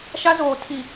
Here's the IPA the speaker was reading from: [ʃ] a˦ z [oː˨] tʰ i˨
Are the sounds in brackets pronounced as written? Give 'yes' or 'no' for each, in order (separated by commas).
yes, yes